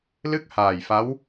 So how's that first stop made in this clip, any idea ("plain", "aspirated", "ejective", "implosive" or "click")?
plain